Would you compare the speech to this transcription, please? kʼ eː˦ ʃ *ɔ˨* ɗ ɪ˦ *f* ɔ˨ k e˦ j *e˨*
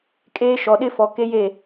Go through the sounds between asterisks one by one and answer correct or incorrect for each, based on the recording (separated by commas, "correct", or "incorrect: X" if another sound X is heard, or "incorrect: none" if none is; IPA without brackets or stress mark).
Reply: correct, correct, incorrect: e˦˨